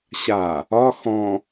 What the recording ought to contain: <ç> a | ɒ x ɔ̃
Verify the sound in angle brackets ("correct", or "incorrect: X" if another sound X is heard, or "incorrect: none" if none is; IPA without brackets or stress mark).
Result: incorrect: ɕ